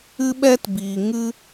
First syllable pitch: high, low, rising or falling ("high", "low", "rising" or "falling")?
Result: high